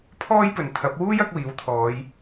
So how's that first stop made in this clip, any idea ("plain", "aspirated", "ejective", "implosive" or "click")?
aspirated